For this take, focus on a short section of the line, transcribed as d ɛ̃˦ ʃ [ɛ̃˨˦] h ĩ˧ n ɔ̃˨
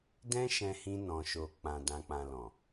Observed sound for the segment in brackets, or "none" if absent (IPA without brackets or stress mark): ɛ̃˧